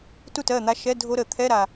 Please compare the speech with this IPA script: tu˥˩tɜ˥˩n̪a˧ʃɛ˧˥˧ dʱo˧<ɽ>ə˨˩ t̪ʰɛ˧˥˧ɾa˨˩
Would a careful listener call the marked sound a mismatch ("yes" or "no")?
yes